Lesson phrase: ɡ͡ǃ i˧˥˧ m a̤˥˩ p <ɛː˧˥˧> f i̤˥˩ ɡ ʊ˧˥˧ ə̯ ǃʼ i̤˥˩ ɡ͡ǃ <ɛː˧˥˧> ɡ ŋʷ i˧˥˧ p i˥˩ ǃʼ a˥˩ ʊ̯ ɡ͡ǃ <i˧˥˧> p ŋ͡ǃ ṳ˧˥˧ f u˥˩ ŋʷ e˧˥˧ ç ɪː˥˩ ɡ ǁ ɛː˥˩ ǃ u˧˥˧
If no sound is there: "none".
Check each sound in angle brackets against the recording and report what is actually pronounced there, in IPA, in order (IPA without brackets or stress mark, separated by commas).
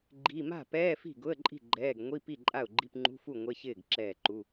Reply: ɛː˧˥˧, ɛː˧˥˧, i˧˥˧